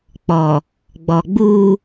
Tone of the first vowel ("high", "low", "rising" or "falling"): low